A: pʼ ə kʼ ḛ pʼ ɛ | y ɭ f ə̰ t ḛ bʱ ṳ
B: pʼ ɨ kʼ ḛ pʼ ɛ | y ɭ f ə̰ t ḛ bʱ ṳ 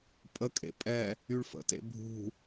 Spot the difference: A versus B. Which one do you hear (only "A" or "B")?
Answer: A